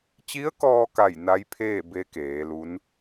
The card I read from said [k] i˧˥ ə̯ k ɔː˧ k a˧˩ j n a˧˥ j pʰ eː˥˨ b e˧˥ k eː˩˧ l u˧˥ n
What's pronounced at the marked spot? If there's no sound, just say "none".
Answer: t͡ɕ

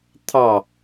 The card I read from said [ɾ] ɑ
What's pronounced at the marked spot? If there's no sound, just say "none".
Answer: t̪ʰ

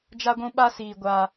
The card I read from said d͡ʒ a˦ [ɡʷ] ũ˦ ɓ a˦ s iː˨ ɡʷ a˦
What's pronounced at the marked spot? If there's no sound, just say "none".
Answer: ɡʷ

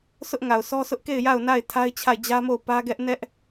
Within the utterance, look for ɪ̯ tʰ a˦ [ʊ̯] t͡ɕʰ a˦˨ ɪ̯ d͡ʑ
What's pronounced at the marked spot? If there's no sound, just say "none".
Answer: ɪ̯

